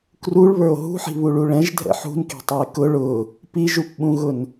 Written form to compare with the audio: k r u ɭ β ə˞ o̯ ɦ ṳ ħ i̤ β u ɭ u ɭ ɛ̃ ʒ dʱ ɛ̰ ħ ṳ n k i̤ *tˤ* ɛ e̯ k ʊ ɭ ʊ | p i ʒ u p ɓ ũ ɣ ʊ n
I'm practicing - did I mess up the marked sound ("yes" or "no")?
no